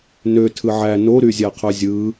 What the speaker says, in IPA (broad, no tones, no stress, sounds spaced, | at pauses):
n ø tʰ ɯ ʕ æ n o ɾ y zʲ æ qʰ ø zʲ ɯ